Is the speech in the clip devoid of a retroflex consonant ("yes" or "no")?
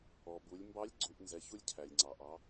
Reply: yes